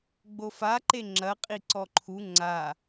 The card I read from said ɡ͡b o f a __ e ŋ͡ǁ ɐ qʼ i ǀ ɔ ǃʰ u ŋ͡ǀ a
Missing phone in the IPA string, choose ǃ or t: ǃ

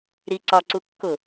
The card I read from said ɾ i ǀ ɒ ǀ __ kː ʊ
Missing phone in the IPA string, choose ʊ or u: u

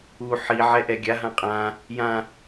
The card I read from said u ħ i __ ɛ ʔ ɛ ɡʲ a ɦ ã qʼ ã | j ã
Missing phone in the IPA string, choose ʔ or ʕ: ʕ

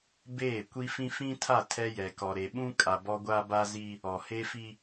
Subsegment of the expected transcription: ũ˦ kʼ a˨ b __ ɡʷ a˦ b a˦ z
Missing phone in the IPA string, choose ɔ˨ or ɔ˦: ɔ˦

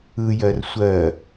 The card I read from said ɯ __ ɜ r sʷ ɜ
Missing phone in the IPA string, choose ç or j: j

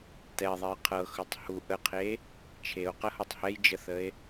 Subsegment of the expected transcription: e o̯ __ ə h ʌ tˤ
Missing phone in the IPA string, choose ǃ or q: q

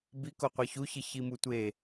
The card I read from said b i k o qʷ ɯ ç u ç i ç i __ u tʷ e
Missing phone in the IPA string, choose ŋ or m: m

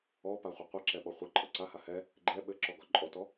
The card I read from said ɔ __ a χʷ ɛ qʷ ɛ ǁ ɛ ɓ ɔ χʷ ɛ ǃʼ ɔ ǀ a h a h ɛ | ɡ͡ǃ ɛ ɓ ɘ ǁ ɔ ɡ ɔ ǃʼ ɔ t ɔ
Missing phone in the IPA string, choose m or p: p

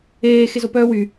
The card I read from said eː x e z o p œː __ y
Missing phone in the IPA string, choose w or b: w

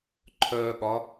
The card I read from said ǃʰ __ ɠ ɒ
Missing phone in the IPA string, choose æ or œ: œ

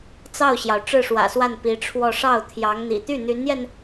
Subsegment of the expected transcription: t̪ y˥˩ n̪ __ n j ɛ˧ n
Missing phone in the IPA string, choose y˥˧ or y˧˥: y˧˥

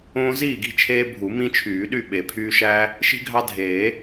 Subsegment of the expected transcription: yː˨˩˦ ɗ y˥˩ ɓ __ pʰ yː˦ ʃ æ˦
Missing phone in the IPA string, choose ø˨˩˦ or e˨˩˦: e˨˩˦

